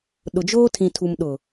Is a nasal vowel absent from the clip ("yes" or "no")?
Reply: no